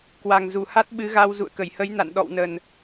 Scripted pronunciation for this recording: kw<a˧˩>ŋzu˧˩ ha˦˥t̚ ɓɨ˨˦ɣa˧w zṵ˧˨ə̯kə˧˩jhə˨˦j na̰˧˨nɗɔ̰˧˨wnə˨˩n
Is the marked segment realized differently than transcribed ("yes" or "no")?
yes